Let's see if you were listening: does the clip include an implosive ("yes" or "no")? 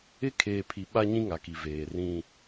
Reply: yes